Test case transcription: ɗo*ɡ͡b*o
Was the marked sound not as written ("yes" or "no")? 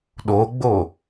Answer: no